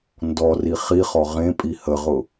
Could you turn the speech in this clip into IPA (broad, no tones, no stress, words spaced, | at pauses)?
ndɔri χiχɔ ʁẽpʼi həʁʊ